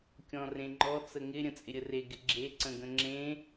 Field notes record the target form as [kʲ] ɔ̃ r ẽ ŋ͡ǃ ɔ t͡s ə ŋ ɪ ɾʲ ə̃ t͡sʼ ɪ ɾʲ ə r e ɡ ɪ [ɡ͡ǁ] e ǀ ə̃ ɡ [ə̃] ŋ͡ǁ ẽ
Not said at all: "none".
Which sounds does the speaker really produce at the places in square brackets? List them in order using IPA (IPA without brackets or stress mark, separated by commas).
kʲ, ɡ͡ǁ, ə̃